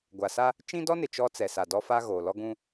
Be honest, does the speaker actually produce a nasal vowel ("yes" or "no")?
yes